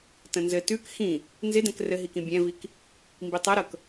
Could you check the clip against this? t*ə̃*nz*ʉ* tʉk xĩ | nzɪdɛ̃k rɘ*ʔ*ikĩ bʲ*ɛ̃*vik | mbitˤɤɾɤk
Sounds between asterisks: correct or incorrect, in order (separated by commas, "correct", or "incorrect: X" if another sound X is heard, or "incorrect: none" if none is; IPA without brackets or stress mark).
correct, incorrect: ɘ, incorrect: ɦ, correct